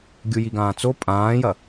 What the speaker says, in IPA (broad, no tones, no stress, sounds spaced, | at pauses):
ɡʲ u j i ɡ ãː t͡s o pʼ ãː j ɐ